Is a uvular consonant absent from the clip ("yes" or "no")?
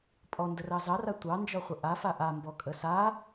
no